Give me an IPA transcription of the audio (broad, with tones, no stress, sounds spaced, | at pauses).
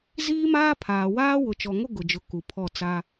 z iː˦ m aː˦ pʰ aː˨ w aː˦ w ʊ˨ t͡ʃ ɔ˨ ŋ o˦ ɡ ʊ˨ d͡ʒ ʊ˨˦ k u˨ pʰ ɔ˦˨ t͡s a˦